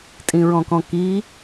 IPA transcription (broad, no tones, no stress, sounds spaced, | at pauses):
tʼ ĩ ɹ ɔ̃ k ɔ̃ k i